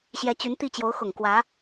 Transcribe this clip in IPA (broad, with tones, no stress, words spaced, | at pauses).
ɕjɛ˧˥t͡ɕy˧˥nt̪i˥˩ t͡ɕjo˧˥ʊ̯xʊ˨˩ŋ kwä˧˥